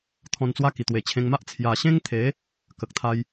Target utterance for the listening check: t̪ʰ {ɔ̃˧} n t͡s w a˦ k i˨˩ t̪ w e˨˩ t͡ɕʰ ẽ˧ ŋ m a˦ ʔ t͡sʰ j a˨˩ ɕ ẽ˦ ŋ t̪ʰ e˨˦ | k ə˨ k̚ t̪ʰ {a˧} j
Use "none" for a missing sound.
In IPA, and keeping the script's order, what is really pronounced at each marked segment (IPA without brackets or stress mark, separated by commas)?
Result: ɔ̃˧, a˦